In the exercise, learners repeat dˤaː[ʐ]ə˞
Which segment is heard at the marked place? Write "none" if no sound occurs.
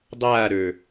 ɾ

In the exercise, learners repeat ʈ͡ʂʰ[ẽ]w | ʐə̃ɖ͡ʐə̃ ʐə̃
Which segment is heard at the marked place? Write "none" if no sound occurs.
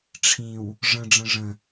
ĩ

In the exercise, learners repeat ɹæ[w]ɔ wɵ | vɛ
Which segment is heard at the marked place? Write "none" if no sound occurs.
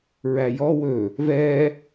j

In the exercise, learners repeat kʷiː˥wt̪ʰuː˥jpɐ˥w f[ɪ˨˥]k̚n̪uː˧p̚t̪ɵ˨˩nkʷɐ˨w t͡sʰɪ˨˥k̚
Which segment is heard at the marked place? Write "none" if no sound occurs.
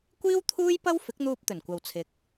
ɪ˨˥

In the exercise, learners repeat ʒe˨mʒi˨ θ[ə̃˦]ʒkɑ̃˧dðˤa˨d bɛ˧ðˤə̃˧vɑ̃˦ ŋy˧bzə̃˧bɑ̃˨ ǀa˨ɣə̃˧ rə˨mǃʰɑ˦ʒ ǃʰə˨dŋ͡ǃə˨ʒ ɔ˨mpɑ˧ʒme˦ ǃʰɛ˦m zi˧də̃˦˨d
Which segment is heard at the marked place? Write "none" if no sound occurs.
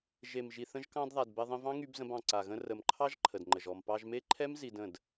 ə̃˧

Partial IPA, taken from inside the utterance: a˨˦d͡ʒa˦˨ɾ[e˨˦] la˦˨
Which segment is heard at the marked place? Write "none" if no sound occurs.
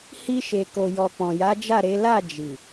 e˨˦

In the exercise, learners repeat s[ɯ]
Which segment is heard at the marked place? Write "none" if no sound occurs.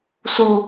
u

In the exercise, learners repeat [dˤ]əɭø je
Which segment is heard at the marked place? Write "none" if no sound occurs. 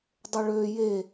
dˤ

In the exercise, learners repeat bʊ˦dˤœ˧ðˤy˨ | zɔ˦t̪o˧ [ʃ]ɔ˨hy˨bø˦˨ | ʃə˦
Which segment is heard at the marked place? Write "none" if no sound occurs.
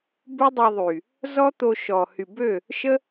ʃ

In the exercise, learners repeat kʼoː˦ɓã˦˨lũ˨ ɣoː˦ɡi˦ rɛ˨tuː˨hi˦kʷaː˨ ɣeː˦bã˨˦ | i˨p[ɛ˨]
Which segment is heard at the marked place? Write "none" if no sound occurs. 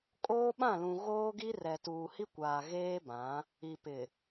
ɪ˨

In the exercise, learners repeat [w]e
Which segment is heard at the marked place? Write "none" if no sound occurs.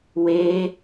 w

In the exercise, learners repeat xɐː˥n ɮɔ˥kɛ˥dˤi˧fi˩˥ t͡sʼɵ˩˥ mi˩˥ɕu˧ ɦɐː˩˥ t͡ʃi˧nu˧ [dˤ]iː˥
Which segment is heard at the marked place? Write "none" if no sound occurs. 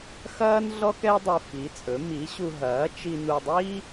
dˤ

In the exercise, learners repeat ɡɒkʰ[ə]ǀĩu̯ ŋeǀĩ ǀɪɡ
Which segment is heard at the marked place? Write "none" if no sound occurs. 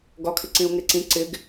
ɪ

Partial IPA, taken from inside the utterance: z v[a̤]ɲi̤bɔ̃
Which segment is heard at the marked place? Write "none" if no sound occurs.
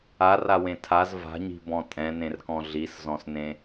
a̤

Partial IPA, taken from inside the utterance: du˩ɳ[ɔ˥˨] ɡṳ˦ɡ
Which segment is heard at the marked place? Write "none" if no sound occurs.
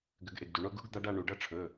o˥˨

